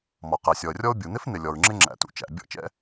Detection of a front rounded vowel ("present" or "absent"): absent